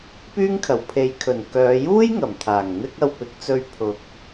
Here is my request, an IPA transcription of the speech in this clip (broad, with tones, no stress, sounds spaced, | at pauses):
p yː˥ ŋ kʰ ɐ˨˩ w pʰ e˨˧ j kʰ ɵ˨˩ n k œː˨˧ j uː˥ j ŋ ɐ˨˩ m t̪ʰ aː˨˩ ŋ n̪ ɪ˥ k̚ ɐ˧ w p ɪ˨˥ k̚ t͡s ɵ˧ ɥ pʰ ʊ˨ k̚